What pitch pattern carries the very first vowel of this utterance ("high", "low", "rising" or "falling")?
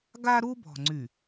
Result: high